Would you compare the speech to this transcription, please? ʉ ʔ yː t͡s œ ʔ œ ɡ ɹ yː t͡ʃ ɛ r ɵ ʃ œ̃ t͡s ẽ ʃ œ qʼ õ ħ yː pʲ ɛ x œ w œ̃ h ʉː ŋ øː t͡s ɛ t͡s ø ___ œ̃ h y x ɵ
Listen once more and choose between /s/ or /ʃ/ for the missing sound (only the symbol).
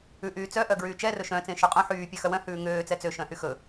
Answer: ʃ